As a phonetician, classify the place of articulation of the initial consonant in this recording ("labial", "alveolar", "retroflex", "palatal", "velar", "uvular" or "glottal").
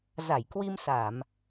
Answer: alveolar